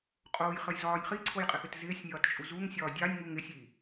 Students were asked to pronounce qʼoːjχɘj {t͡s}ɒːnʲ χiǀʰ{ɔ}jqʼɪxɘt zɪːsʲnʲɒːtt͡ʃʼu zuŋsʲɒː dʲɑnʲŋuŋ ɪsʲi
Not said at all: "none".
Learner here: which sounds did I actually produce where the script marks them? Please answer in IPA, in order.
z, o

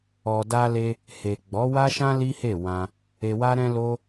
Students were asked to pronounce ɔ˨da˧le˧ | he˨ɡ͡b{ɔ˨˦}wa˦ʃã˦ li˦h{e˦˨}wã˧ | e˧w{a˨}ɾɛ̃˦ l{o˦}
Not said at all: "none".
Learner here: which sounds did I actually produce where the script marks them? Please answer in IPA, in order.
ɔ˨˦, e˦˨, a˦, o˦

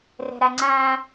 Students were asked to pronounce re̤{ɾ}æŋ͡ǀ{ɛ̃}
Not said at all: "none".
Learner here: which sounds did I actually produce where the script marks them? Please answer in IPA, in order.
ɾ, æ̃

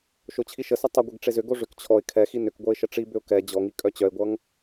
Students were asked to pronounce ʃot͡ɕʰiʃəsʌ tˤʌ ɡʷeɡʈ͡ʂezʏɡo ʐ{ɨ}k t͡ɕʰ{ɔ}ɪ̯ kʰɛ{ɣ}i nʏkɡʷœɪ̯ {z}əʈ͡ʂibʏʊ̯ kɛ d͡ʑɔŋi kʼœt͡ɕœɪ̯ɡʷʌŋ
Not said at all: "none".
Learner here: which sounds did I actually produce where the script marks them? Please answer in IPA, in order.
ʏ, ɔ, x, ʃ

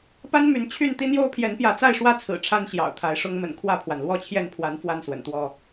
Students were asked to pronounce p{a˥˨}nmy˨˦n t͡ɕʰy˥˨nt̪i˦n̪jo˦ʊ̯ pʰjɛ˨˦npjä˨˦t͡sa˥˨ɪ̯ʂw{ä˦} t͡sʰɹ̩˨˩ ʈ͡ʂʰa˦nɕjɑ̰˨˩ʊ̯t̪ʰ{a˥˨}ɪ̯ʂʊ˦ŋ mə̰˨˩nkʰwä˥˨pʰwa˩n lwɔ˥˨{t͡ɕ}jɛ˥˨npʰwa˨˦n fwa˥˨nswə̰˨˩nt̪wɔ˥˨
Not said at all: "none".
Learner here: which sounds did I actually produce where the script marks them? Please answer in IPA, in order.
a˦, ä˦, a˨˦, t͡ɕʰ

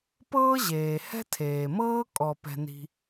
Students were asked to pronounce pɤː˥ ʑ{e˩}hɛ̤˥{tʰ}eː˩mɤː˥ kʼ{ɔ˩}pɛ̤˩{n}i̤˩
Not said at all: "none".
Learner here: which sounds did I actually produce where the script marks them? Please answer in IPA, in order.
eː˩, tʰ, ɔ˩, n

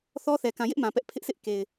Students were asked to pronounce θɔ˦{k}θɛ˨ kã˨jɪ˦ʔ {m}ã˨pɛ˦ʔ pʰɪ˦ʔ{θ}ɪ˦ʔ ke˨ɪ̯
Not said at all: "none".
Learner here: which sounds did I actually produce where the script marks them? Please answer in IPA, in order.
none, m, s

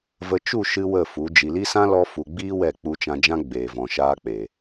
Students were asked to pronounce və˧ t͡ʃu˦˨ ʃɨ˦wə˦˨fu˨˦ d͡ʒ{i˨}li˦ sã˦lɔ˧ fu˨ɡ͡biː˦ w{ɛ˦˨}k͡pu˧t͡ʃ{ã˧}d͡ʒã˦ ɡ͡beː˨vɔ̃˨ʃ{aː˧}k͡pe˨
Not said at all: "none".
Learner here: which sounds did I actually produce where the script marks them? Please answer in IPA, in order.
i˨, ɛ˦˨, ã˧, aː˧

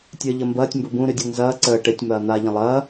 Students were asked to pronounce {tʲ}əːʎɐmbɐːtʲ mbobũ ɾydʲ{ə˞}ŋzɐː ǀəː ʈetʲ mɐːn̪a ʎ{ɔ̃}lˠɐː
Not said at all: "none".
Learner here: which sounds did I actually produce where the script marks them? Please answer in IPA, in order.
tʲ, ɤ, ə̃

